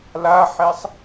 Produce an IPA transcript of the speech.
l a ħ ɛ sˤ

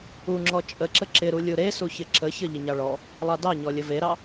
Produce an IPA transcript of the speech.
u ŋ͡ǁ ɔ t͡ʃʼ ə ǁ ə ǁ ɪ ɾ u lʲ u ɾ e s u ç ɪ ǁ ə ç ə ʎ ɪ ɲ ɑ ɭ ɔ | lˠ ɑ d ɑ ɲ ɔ lʲ ə v e ɾ ɑ

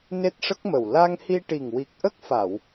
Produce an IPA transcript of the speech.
n e˦˥ t̚ ʂ ə˦˥ k̚ m ə˨˩ w l a˧ ŋ h i˧ ʈ i˨˩ ŋ w i˨˩ k̚ ʔ ə˦˥ k̚ f a˨˩˨ w

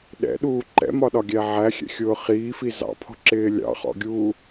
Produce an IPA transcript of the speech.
ɗ ɛ̰ ɗ uː ǃ ɛ̰ m ɒ ɗ ɒ ɡʲ æ ʕ æ xʲ ɛ̰ xʲ ʊː χ iː f i z ɑ̰ pʰ ɔ̤ ǁ ɪː lʲ ɑ̰ χ ɔ̰ ɡʲ uː

